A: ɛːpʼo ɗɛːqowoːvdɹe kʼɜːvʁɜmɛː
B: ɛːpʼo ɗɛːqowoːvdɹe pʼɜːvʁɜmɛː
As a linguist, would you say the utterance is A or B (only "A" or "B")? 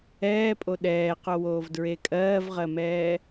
A